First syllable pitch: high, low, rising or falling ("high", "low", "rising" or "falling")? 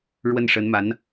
falling